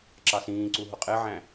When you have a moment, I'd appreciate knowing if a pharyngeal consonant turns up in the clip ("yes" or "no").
yes